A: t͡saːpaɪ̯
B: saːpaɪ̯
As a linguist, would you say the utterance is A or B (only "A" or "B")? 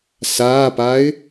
B